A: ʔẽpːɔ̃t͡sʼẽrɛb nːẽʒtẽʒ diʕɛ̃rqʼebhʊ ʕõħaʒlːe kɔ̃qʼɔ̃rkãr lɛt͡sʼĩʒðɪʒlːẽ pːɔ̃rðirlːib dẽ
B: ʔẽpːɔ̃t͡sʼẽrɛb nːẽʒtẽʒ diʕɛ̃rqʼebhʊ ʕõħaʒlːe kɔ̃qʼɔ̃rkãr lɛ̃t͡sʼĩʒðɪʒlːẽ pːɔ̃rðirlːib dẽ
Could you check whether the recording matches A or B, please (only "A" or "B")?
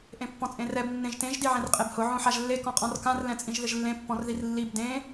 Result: B